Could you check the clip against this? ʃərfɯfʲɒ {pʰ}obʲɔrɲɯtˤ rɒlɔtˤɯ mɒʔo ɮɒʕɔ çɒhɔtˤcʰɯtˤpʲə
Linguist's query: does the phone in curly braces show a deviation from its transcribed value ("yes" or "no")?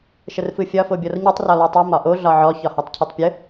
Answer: yes